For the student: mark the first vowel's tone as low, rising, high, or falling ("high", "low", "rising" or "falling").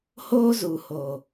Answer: high